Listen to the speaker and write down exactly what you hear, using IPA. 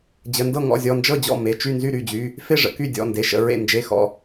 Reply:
d͡ʑ ə˩˧˩ n d ɤ˥˩ ŋ ɔ̰˥˩ zʲ ɔ˩˧˩ n d͡ʒ ɤ˥˩ d͡ʑ ɔ̰˥˩ m e˩˧˩ t͡ʃ y˥˩ n z y˥˩ ɾ y˥˩ d͡ʑ y˩˧˩ | f e˥˩ ʐ ə̰˥˩ k y˥˩ dʲ ɔ̰˩˧˩ n d e˩˧˩ ʃ ə̰˩˧˩ ɹ ḛ˥˩ n d͡ʒ e˩˧˩ x ɔ̰˩˧˩

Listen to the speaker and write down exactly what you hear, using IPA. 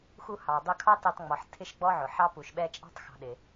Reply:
x u˦ h ɑ˨ dˤ ʊ˦ kʰ ɑ˥ t ɛ˦ tˤ ŋ͡m ɔ˨ ħ tʰ ɪ˥ ʃ ɡ͡b ɔ˥ ʕ ʊ˩ ħ ɑ˦ p u˩ ʃ ɓ ɛ˦ t͡ʃʼ ɑ̤˥ tˤ x ɑ̤˨ ɗ ɪ˩

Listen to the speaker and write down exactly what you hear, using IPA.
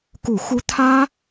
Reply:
k u˨˩ x u˧˥ t̪ʰ ä˥

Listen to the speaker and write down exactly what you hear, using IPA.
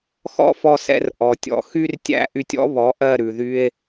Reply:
x ɔ̰˥ f ɔ˧ s ɛ̰˧ r ʔ ɔ˩ tʲ ɔ̰˩˥ x y˥ r tʲ æ̰˥˩ ʔ y˧ tʲ ɔ̰˥ β ɔ˩˥ ʔ ɜ˥˩ ɾ ʉ˩ ð y˧ e̯

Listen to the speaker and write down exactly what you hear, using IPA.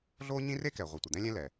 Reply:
ɮ oː˥ ɲ ĩ˥ r e˥ k ɛ˩ ʁʷ i˩ tʷ ə˩ d̪ ɛ̃˥ lʲ ɛ̃˥ l ɛ˩

